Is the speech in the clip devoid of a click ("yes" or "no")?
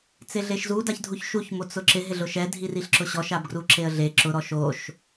no